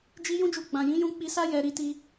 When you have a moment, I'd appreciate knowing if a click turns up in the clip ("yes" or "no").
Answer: no